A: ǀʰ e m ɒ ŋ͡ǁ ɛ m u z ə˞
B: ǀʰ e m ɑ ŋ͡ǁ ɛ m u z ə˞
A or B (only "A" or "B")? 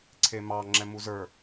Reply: B